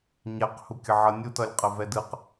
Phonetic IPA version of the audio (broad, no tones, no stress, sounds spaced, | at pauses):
ɲ ɛ q h u kʲ ə ʕ ʌ nʲ u t ʌ lʲ qʼ ə v ɛ d ɯ q